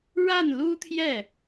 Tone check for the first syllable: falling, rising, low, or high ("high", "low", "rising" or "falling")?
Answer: falling